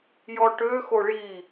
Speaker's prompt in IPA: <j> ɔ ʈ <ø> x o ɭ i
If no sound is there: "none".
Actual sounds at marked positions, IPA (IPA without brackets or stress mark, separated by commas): j, ø